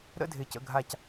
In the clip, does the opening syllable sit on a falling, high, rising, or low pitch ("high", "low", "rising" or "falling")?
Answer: falling